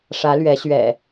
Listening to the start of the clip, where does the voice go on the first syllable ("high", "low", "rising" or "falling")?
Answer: rising